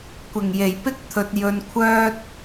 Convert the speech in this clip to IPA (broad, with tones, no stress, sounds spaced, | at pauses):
kʷ ɪ˨˩ ŋ j e˨˩ j p ɪ˥ k̚ t̪ʰ ɵ˨ t̚ j ɵ˧ n kʷʰ œː˥ t̚